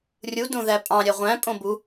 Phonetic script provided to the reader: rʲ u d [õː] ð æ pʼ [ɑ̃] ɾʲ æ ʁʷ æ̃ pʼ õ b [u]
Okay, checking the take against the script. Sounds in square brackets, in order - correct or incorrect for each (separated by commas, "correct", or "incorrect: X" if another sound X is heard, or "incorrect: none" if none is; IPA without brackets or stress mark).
incorrect: õ, correct, correct